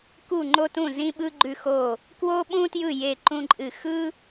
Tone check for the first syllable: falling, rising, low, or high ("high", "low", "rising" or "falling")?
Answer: falling